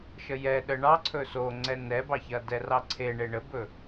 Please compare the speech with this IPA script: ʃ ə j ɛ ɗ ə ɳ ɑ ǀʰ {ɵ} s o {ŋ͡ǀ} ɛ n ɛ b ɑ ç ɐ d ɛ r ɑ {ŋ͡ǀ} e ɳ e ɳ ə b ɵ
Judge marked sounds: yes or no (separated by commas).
yes, yes, no